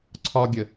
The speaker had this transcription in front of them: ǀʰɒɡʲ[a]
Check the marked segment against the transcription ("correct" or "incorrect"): incorrect